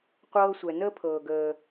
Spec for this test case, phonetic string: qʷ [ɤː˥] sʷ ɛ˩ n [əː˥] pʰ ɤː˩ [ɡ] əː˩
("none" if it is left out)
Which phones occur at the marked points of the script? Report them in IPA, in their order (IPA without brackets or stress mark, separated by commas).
ɤː˥, əː˥, ɡ